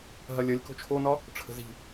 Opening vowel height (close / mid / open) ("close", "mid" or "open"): open